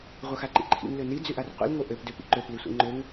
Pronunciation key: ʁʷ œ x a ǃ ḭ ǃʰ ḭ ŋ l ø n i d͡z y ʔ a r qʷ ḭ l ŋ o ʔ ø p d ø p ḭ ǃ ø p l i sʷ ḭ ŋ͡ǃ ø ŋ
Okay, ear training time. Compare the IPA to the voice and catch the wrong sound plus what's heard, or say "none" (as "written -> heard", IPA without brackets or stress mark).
none